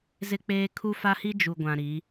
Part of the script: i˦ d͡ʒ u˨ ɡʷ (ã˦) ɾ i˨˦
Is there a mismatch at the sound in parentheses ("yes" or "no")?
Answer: yes